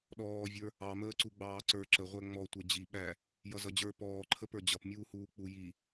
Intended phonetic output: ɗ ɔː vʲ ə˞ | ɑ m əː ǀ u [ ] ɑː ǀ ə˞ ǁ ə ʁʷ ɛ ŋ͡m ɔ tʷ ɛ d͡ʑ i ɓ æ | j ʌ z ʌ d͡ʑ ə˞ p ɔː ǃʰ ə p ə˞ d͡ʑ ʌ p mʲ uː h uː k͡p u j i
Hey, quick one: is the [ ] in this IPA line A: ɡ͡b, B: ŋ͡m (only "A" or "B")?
A